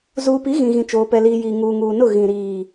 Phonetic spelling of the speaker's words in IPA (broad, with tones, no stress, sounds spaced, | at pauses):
z uː˨ p i˨˦ ɣ ĩ˨ ɣ ĩ˨ t͡ʃ oː˨ p ɛ˨ l iː˨ j iː˨ ŋ uː˨ ŋ uː˨ n ʊ˦˨ ɣ ĩ˨ ɾ iː˨